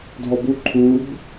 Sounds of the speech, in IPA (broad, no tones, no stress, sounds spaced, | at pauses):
dʱ ɔ b u ǃʰ u b